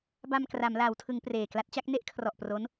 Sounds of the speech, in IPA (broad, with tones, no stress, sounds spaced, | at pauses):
b a˧ m k r a˩˦ m l aː˩˦ w tʰ ɯ˩˦ ŋ p r eː˨˩ k l a˦˥ t̚ t͡ɕ a˦˥ k̚ n e˥˩ ʔ kʰ r ɔ˨˩ ʔ p r o˦˥ n